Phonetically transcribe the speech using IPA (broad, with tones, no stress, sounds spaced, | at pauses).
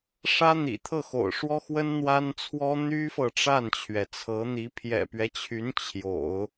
ʂ ä˥ n̪ ḭ˨˩ t̪ʰ ɤ˥˩ x o̰˨˩ ʊ̯ ʂ w ɔ˥ x w ə˥ n n̪ w a˥ n t͡sʰ w ɔ˥ n̪ y˥ f ɤ˨ ʈ͡ʂ a˥˩ n t͡ɕʰ ɥ ɛ˩ t͡sʰ ɤ˧˥ n̪ i˧˥ pʰ j ɛ̰˨˩ p ɥ ɛ˦ t͡ɕʰ y˧˥ n t͡ɕʰ j o̰˨˩˦ ʊ̯